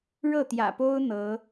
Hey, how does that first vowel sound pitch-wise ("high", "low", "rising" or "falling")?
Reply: falling